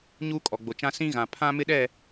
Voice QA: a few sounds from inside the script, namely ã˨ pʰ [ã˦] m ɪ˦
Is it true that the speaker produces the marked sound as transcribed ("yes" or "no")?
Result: yes